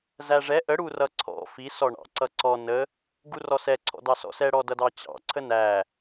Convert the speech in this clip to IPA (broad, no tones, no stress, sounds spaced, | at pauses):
z æ ʐ ɛ ʔ ə ɽ u r ʌ ǀʰ ɔ̰ f i s ɔ ɳ ɑ̰ ǀ ʌ ǀ ɔ n ə | ɡ u r ɔ s ɛ ǀʰ ɔ̰ d ɑ s ɔ̰ s ɛ ɽ ɔ d ʌ d ɑ t͡ɕ ɑ̰ ǀʰ ə n æ